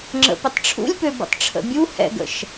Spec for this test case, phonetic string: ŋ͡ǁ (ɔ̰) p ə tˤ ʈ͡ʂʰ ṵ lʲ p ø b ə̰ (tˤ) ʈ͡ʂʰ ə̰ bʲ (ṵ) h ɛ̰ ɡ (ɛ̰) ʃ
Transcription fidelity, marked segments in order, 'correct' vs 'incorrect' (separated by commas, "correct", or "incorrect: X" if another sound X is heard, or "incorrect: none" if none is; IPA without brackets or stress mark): incorrect: ə̰, correct, incorrect: u, incorrect: ə̰